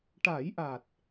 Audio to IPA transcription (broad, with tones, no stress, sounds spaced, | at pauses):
ʈ a˨˩˦ j ʔ a˨˩ t̚